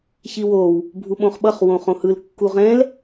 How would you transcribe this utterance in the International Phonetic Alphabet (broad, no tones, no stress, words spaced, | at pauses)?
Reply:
çiwow | bʱuɓõχɓʌχ wõχõhɯl kːuʁɛ̃l